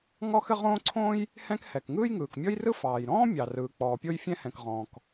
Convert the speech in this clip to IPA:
ŋ ɔ˥ x ɘ˥ ʁ õː˥ ǀʰ õː˥ j | h ɛ̃˥ k h ɛ˩ k ŋ ɯː˥ j ŋ ɯː˩ k mʲ ɔ˥ j r ɯ˥ f ɑː˩ j ɾ ɔ̃ː˥ mʲ ɑ˩ r ɯː˩ k͡p ɔː˩ pʲ o˥ j fʲ ɛ̃˥ h ɛ̃˩ k ʁ ɔ̃ː˩ k

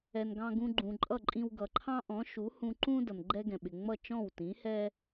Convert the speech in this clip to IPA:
ɛ˩ n ɡ ɑ̃˧ ɡ ũ˧ ɡ͡ǃ ũ˩ ǃʼ ʌ˥˩ ǃʼ ĩ˧ w ɡ ʌ˩ ǃʰ ɑ̃˥ ʔ ɔ̃˩˥ ʃ u˩˥ h ũ˧ ǃ ũ˥ d ʌ˩ n ɡ͡ǃ ɛ˥ ɡ ɛ̃˩ ɓ ɪ˩ ŋ͡m ʌ˥˩ t͡ʃ ɔ̃˥˩ w t ĩ˩˥ h ɛ˥

